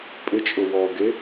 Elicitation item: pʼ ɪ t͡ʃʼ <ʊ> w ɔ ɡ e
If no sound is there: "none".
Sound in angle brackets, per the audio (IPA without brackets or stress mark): ʊ